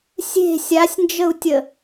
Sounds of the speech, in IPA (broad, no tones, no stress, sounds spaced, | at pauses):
sʲ e̤ sʲ a sʲ n d͡ʒ ə u̯ tʲ ə